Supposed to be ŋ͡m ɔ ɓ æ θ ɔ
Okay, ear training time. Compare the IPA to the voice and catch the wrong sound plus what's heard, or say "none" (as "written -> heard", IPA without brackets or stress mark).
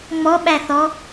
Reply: none